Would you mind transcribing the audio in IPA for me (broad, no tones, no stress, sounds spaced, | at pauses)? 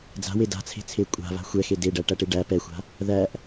d͡z a̤ w e d a̤ t͡sʰ e̤ t͡sʰ e kʷʼ a̤ β a̤ xʷ ɛ x e d e ɖ æ ʈ æ ʈ e ɖ æ p ɛ xʷ a̤ | ð æ ʔ